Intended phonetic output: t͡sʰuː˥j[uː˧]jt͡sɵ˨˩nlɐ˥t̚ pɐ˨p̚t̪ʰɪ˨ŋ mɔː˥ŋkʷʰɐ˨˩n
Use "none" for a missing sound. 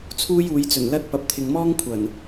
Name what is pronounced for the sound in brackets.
uː˨˧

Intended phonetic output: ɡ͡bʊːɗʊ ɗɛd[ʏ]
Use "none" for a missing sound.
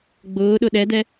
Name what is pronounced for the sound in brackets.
ɛ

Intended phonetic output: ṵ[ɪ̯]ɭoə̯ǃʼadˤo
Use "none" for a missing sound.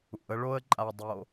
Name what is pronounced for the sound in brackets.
ə̯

